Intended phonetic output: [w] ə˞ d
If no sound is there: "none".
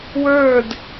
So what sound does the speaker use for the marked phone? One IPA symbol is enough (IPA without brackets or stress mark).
w